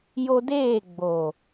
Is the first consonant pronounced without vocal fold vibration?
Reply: no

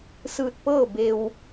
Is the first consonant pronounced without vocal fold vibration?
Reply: yes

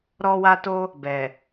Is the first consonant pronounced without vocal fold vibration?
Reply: no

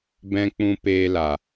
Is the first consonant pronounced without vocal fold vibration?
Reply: no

